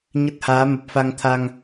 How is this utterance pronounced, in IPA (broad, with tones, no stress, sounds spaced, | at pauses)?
ɲ ə˦˥ t̚ h aː˨˦ m ə˨˩ p̚ f a˧ ŋ t̪ʰ a˧ ŋ